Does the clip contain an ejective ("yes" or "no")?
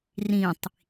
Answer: no